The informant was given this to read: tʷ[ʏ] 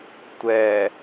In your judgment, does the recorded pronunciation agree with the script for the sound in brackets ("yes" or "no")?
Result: no